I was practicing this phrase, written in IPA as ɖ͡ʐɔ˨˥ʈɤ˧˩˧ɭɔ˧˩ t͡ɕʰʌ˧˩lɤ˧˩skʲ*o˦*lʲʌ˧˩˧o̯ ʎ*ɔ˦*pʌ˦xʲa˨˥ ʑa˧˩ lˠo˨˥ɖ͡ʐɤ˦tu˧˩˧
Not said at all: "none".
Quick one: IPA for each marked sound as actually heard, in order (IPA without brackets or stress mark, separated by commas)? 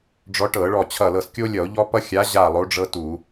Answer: o˦, ɔ˦